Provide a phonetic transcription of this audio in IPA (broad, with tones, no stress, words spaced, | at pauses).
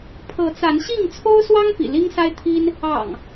pʰɤ˨˦t͡sa˨˦nɕi˥˨ŋ t͡sʰo˦ʊ̯swɑ˦ŋ pḭ˨˩li˦ŋsa˦ɪ̯t̪ʰi˦n | ɑ̰˨˩ŋ